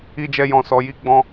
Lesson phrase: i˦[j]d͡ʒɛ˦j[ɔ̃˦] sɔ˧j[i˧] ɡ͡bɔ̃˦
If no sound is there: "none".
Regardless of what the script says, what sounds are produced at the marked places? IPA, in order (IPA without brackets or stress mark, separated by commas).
none, ɔ̃˧, i˦